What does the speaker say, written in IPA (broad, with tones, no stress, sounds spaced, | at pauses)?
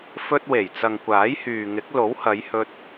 f ɵ˧ t̚ w e˨˩ j t͡s ɐ˨ ŋ kʷ aː˨˥ j h yː˨ ŋ ɪ˨˥ k̚ l o˨˥ w h ɐ˨˧ j h ɵ˧ t̚